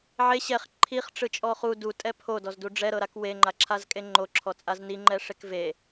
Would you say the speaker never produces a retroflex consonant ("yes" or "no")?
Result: no